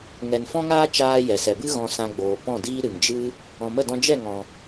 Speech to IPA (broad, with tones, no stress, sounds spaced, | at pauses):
ŋ ɛ˨ n f ɔ̃˦ ŋ aː˦ t͡ʃ aː˦ j ɛ˨ s ɛ˨ b ɨ˦ ɣ ɔ̃˧ s ã˧ ɡ͡b oː˨ p ɔ̃˦˨ d iː˦ ɾ ɨ˨ ŋ d͡ʒ ɨ˦ | ɔ̃˨ m ə˦˨ d ɔ̃˧ d͡ʒ ɛ˦˨ ŋ ɔ̃˨